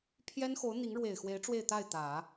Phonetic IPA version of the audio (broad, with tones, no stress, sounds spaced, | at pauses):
pʰ j ɛ˥ n x o˧˥ ʊ̯ n̪ i˧˥ ŋ ɻ w e˨˩ ɪ̯ x w e˧˥ ɪ̯ ʈ͡ʂ w e˥˧ ɪ̯ t̪ a˥˩ ɪ̯ t̪ ä˨˩˦